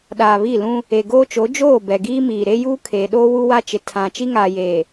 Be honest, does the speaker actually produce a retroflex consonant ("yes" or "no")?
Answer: no